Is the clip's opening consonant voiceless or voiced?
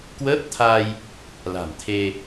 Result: voiceless